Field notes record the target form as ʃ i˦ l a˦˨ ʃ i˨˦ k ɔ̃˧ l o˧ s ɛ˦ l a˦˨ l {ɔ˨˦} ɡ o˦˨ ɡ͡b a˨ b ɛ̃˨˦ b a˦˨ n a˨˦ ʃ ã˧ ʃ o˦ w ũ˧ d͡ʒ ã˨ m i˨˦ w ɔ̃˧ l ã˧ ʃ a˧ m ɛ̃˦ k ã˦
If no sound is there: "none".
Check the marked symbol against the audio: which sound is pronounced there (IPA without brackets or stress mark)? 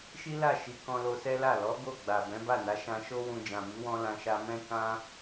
ɔ˨˦